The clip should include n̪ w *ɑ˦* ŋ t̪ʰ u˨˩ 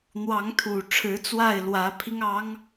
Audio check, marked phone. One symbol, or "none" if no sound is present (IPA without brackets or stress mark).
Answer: ɑ˨˦